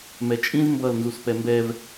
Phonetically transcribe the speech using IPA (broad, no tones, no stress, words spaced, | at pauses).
mɛt͡ʃʼĩz mbʌl nzuspɛmbɛv